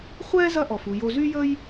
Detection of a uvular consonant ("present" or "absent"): present